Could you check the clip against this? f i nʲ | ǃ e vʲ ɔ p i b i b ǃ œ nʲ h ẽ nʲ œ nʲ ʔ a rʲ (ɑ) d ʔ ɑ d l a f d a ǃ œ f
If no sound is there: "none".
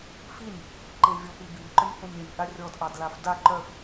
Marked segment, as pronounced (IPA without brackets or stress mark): ɔ